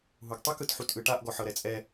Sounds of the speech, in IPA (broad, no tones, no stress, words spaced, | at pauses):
ɦuɡtˤɯk ɯtħutʔɯʈaʔ ɡɔħɤɾɛt͡sʼɛ